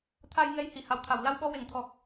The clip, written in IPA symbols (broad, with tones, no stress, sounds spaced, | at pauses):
t̪ʰ a˧ j ŋ ɛ˧ j h i˨˩˨ h a˨˩ w t̪ʰ a˨˩˨ w l a˧ w ɓ ɔ˧ w e˨˩˦ ŋ t̪ʰ ɔ˨˩ k̚